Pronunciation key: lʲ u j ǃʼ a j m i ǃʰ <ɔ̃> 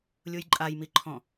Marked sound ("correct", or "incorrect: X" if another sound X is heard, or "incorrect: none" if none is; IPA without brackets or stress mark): correct